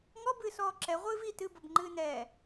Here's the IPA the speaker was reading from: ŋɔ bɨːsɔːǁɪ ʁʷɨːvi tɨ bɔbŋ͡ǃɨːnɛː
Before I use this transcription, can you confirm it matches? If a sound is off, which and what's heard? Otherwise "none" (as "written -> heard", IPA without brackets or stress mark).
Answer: ɪ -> ɛ